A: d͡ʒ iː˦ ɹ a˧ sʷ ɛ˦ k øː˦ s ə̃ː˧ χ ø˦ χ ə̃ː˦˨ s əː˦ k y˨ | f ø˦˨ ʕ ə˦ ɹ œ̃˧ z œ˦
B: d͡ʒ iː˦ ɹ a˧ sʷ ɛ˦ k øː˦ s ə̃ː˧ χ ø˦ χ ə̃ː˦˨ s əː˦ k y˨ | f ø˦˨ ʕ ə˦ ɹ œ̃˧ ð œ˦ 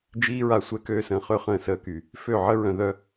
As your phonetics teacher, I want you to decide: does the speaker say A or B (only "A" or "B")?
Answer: B